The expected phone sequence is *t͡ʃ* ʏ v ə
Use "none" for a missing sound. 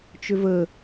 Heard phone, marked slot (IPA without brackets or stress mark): t͡ʃ